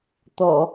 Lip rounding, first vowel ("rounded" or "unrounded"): rounded